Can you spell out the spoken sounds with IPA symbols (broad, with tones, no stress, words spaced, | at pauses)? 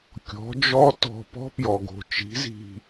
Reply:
kʲɔ̤˩˥d͡ʒɔ˦˥ tɔ̤˧˩ pɔ̤˦˥pjɔ˩ ɡo̤˩ t͡ʃi̤˩˥zi̤˧˩